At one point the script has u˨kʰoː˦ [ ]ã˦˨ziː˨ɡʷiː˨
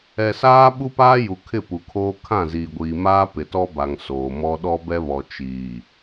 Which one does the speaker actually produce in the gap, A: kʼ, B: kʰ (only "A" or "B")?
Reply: B